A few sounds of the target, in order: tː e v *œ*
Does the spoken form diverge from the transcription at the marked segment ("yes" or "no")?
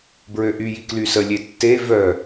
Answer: no